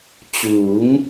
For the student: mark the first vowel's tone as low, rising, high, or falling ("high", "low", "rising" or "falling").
rising